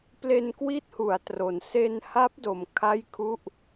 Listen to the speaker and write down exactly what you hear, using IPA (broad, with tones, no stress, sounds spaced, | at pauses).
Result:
p l e˧ n k w i˦˥ t̚ h u˩˦ a̯ t r o˨˩ n s e˧ n h a˦˥ p̚ d o˨˩ m kʰ a˥˩ j kʰ u˥˩ ʔ